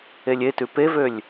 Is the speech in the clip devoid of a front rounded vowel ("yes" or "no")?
no